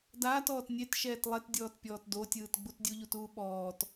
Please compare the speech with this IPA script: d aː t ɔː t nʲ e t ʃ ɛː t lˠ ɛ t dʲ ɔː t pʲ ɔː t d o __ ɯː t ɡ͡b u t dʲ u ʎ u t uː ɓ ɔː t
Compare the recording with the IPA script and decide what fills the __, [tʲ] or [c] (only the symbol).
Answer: tʲ